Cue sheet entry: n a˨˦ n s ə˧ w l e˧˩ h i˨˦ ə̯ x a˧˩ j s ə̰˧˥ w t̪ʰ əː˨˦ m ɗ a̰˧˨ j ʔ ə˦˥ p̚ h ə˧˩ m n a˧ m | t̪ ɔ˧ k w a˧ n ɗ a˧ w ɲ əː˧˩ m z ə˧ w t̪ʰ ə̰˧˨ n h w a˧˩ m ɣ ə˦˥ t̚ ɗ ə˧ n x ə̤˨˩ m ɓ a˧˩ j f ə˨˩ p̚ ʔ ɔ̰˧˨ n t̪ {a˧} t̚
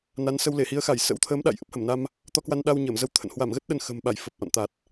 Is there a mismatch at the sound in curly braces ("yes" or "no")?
yes